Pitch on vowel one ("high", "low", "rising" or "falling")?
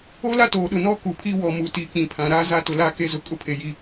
high